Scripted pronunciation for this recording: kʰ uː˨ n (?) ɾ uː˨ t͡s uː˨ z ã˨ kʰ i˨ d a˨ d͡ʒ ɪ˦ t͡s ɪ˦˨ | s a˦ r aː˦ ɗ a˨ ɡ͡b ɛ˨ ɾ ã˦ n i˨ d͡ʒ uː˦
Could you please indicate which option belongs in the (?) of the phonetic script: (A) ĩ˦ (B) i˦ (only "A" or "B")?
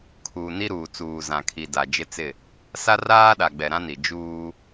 B